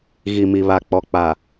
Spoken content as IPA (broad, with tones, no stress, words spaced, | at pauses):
ɣi˨mi˨βa˨k͡pɔ˨ k͡pa˨